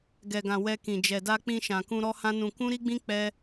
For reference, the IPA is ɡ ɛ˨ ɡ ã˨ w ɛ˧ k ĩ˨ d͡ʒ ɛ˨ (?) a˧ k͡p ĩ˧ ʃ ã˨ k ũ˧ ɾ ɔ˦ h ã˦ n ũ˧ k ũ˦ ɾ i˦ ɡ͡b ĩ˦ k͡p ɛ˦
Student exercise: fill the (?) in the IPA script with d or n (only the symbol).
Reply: d